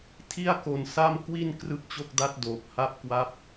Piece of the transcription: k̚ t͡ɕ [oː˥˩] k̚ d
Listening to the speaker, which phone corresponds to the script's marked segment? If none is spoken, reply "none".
o˥˩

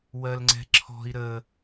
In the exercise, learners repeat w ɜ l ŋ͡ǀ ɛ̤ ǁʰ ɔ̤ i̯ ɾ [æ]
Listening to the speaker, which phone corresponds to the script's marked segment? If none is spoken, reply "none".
ə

